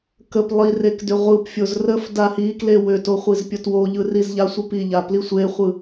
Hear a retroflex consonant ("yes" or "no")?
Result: no